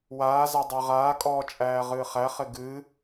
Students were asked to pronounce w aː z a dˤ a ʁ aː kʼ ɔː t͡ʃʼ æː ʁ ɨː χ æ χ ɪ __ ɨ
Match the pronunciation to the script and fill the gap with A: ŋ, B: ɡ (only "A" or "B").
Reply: B